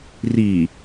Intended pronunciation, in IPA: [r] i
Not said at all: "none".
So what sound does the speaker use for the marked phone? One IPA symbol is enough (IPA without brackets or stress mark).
r